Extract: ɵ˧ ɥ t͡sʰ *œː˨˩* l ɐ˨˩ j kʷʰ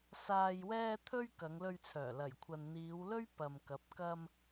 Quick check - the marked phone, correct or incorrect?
correct